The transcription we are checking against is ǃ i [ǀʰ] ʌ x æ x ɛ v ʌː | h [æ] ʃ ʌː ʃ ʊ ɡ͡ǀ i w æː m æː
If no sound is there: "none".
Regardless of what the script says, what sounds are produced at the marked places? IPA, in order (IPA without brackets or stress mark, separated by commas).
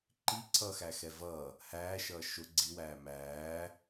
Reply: ǀʰ, æː